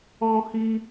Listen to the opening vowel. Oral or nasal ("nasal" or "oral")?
nasal